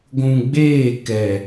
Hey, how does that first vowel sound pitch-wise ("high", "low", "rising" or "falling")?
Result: low